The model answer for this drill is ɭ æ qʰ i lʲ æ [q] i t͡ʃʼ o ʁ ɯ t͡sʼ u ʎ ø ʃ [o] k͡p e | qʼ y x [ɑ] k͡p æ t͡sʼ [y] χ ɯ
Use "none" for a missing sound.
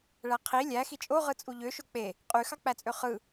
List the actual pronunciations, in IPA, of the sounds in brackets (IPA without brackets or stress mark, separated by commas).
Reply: x, o, ɑ, ø